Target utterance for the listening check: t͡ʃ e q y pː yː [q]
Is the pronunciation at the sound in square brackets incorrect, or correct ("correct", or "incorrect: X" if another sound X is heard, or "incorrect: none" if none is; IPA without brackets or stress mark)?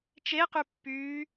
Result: incorrect: none